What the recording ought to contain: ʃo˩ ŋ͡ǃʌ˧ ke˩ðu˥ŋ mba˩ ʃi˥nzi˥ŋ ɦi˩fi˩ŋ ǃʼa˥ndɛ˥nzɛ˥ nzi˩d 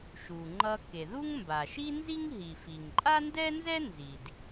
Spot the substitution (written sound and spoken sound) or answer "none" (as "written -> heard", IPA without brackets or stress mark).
o˩ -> u˩